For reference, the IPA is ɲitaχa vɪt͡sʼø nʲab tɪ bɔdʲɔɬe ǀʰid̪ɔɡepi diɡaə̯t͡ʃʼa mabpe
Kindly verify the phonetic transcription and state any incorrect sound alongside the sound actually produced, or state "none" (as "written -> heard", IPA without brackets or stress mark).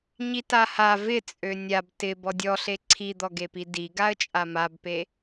χ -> h